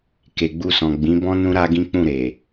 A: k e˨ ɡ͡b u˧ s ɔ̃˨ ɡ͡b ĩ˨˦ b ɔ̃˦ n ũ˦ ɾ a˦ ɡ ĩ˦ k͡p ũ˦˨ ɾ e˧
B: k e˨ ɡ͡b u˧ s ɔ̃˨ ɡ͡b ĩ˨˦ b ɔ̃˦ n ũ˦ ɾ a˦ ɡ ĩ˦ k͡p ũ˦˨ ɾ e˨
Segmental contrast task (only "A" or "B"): B